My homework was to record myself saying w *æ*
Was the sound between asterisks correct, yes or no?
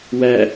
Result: yes